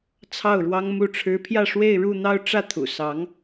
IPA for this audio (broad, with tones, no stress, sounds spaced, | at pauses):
t͡sʰ ɑ˥˩ ʊ̯ ɻ w ɑ˥ ŋ m u˥˩ ʈ͡ʂʰ ɻ̩˥ pʰ j ä˥˧ ʂ w e˥˧ ɪ̯ ɻ u˥˧ n̪ ɑ˥˧ ʊ̯ ʈ͡ʂ ä˥˩ t̪ʰ ṵ˨˩ s ɑ˧˥ ŋ